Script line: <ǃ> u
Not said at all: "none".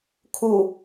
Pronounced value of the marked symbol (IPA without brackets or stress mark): kʰ